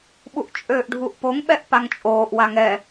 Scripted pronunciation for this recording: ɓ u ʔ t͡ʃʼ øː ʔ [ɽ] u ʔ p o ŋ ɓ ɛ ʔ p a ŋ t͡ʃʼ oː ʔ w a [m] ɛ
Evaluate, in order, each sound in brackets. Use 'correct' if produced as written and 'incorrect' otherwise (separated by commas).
incorrect, incorrect